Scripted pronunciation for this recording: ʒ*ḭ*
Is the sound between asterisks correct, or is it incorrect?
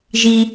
incorrect: i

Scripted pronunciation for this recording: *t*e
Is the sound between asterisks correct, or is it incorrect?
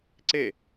incorrect: ǀ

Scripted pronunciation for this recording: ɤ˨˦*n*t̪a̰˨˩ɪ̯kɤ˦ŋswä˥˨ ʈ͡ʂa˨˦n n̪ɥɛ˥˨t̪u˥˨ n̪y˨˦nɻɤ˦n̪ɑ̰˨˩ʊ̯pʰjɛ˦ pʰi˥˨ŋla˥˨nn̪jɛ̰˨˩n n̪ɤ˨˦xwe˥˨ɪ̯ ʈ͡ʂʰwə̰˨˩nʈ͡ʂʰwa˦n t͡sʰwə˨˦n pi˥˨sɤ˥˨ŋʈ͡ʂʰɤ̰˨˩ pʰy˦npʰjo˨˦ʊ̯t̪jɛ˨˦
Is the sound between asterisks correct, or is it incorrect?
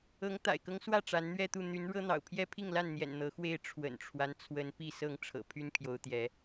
incorrect: ŋ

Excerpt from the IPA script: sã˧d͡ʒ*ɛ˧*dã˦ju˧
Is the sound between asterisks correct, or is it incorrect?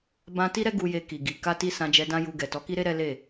correct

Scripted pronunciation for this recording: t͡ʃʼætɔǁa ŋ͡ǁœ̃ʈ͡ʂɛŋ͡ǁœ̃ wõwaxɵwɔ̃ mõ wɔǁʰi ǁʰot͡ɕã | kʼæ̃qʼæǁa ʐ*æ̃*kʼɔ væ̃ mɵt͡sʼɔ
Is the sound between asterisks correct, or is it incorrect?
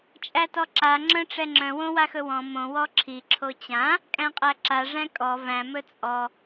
correct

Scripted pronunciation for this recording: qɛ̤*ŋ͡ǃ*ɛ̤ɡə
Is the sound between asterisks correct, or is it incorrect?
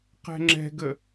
incorrect: ŋ͡ǁ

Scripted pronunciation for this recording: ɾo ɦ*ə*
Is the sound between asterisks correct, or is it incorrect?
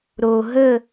correct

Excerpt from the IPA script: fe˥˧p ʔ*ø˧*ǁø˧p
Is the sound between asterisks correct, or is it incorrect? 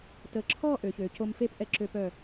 incorrect: ɛ˧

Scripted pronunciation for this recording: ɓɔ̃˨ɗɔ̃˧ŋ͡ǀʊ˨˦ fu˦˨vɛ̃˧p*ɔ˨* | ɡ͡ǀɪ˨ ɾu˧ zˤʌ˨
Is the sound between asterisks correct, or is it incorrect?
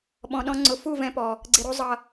correct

